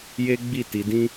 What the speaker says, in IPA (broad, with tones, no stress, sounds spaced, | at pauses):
j e˦ ɡ͡b i˦˨ t i˧ d ĩ˦